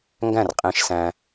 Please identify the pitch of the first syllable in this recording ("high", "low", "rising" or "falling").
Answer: falling